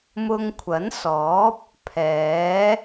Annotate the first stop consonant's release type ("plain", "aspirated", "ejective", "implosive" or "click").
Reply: aspirated